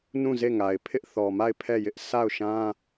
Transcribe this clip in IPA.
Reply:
n ũ˦˨ z e˦˨ ŋ a˨ ɪ̯ pʰ ɪ˦ ʔ θ ɔ˨ m a˦˨ ɪ̯ pʰ ɛ˦˨ j ɪ˦ ʔ sʰ a˦˨ ʊ̯ ʃ ã˦

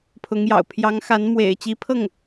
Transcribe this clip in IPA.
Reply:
pʰ ʊ˧˥ ŋ j ɑ̰˨˩ ʊ̯ pʰ j ɑ˧˥ ŋ x a˧˥ n m w ḛ˨˩ ɪ̯ t͡ɕ i˧˥ pʰ ɤ˥˩ ŋ

